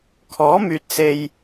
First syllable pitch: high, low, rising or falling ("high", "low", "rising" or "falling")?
rising